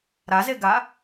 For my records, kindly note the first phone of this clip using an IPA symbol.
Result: ɾ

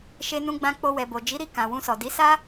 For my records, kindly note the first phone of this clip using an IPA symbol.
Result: ʃ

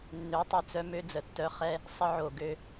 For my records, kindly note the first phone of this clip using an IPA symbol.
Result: nː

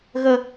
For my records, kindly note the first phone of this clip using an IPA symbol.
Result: ɣ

